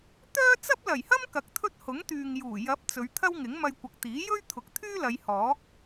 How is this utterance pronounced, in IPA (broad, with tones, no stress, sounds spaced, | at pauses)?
t̪ œː˥ t͡s ɐ˥ p̚ l ɐ˨˩ j h ɐ˥ m k ɐ˨˥ k̚ t̪ʰ ɵ˥ t̚ h ʊ˨˥ ŋ t̪ yː˨ ŋ j uː˨˩ j ɐ˨˥ p̚ t͡s ɵ˨˧ ɥ t̪ʰ ɐ˥ w ŋ ɪ˨˥ ŋ m ɐ˧ j kʷ ɐ˨ k̚ t̪ iː˨˥ j ɵ˥ ɥ t̪ʰ ʊ˨ k̚ t̪ʰ yː˥ l ɐ˨˧ j h ɔː˨˥ k̚